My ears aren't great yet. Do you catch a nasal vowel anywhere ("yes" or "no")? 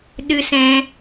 yes